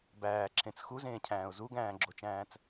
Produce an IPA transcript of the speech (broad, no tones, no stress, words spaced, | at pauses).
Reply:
bæːǁʰẽt͡s xuzẽːcʰæ̃ːʊ̯ zuɡæ̃ːɡ͡ǁot͡ʃæ̃ːt͡s